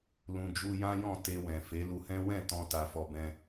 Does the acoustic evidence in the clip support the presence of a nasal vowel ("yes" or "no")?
yes